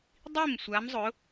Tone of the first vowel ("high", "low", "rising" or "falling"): falling